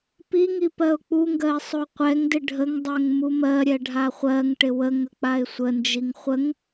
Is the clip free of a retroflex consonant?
no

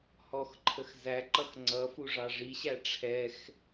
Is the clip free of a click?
no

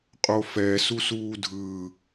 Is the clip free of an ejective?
no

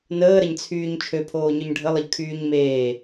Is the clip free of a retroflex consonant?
no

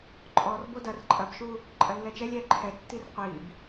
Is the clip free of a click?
no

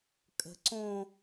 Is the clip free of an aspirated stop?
yes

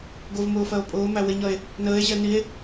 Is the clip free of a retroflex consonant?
yes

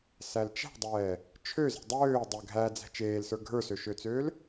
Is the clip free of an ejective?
yes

